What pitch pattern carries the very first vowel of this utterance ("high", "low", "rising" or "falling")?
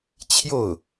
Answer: falling